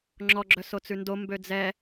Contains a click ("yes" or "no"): yes